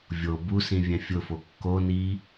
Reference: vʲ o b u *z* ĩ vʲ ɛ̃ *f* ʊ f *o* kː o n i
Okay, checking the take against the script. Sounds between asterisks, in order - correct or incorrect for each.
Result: incorrect, incorrect, correct

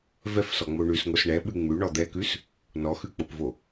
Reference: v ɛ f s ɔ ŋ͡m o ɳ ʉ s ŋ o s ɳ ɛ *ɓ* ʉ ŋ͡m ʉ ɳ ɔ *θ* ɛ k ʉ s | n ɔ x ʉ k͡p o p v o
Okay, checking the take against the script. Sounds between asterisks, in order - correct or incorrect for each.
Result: correct, incorrect

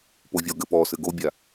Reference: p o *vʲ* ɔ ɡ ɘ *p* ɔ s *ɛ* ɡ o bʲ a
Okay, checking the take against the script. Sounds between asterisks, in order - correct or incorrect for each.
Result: correct, correct, incorrect

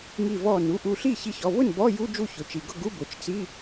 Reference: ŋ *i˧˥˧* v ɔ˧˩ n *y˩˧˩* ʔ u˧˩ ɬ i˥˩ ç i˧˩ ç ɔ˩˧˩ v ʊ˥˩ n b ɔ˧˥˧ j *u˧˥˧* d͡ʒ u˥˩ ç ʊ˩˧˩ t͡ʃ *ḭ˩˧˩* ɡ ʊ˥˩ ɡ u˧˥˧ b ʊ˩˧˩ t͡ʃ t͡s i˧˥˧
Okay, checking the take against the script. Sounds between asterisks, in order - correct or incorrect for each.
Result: incorrect, incorrect, correct, incorrect

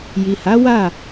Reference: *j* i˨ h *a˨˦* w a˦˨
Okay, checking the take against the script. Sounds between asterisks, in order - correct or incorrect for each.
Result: correct, correct

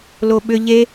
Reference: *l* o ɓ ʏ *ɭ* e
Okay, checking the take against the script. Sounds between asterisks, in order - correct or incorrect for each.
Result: correct, incorrect

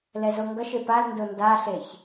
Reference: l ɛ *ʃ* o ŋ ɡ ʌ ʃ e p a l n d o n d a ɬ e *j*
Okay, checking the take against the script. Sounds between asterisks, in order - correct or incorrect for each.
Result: incorrect, incorrect

